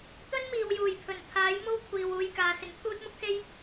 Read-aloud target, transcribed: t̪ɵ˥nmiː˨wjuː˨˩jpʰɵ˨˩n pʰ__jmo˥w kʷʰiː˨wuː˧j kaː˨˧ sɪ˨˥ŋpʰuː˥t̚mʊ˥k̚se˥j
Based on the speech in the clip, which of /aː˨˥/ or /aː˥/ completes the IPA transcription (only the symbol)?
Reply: aː˨˥